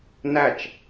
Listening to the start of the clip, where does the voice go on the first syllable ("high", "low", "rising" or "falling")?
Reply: falling